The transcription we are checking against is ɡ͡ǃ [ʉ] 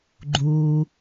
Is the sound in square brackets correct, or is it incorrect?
incorrect